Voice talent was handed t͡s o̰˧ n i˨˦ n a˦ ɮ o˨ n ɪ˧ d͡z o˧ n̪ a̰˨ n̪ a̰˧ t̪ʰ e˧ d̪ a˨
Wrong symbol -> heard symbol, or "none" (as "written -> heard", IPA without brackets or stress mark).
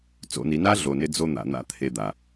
none